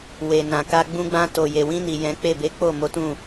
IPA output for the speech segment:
w e˨ n ã˨ k a˧ ɡ͡b ũ˧ ɡ͡b ã˧ t o˨ j e˨ w ĩ˧ n i˨ j ɛ̃˨˦ k͡p e˦˨ b e˨˦ k͡p o˦˨ m o˨˦ t ũ˦˨

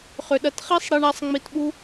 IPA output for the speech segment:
χ ʏ˩ ɗ ɐ˨ t χ i˥ sˤ ɽ i˨ ɳ a˨ sˤ ŋ͡m i˨ t ɓ u˦

